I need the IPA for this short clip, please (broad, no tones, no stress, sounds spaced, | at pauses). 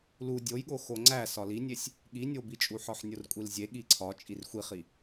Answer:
l u dʲ o j ɠ o x o ŋ͡ǀ æ s ɒ l i nʲ e sʲ | ɠ i nʲ o b i t͡ʃʼ u ħ ɒ ħ nʲ o r kʷʼ i l zʲ e ɠ i ǀʰ ɒ t͡ʃʼ i r xʷ i χ i